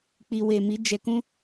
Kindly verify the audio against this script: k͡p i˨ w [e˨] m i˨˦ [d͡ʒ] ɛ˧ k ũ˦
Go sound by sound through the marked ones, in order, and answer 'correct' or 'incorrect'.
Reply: correct, correct

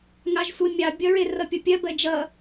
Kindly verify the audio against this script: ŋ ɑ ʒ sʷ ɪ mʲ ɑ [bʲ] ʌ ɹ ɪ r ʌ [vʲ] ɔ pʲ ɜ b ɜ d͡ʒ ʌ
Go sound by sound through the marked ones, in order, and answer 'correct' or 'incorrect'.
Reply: correct, incorrect

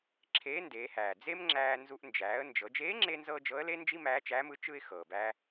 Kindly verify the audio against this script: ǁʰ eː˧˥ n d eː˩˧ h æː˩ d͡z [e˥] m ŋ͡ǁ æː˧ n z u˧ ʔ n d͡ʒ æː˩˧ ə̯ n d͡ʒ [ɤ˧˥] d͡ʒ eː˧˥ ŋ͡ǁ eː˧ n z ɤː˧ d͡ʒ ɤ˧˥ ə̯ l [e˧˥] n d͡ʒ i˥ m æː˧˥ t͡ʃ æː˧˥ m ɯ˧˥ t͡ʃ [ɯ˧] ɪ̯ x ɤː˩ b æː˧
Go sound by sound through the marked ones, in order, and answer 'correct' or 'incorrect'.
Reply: correct, incorrect, incorrect, correct

